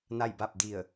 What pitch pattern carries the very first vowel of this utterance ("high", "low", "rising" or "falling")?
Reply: falling